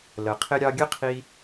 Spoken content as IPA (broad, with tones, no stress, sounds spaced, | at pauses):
l ə˩ qʰ ɪ˧ ɾʲ ɑ˧ ɡʲ ə˥ qʰ i˧